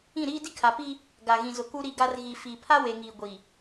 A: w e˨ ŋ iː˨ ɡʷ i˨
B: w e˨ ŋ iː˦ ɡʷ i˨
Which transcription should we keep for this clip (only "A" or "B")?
A